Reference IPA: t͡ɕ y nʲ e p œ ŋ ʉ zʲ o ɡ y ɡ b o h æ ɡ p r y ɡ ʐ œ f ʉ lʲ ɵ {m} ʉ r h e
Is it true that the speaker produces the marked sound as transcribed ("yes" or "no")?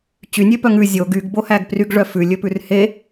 no